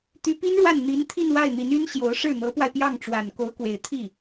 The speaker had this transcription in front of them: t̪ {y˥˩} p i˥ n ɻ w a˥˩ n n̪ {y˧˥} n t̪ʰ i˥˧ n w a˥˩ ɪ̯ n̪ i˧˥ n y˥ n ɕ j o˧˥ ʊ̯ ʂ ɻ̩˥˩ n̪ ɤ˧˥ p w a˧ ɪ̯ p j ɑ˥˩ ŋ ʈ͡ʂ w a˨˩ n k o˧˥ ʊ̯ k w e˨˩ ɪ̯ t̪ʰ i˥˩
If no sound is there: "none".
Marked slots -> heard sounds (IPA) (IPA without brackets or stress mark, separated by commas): y˧˥, i˧˥